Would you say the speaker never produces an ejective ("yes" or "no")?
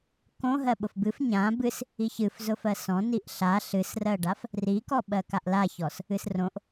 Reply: yes